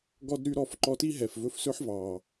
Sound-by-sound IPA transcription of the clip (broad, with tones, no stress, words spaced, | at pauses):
ɡɔ˦dɾy˦ɾɔ˧f ǃɔ˧ti˦ɦɛ˨f vɵ˧fsɵ˦ħvɑ˨